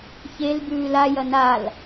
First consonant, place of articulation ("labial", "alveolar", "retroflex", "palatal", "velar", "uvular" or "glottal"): palatal